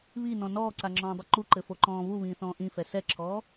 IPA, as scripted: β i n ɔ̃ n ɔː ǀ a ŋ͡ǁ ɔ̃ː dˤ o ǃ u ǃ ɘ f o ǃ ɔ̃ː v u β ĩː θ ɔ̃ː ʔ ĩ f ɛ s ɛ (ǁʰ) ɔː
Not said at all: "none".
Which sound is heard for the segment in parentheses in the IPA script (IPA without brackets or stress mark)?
ǁʰ